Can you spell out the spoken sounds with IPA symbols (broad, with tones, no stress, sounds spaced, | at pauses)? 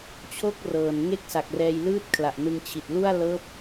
t͡ɕʰ o˥˩ k̚ r ɤː˨˩ n ŋ e˥˩ k̚ s a˨˩ k̚ r ɛː˧ j l ɯː˥˩ t̚ kʰ l a˨˩ ʔ n ɯ˧ ŋ t͡ɕʰ i˨˩ t̚ l u˥˩ a̯ l ɤː˦˥ p̚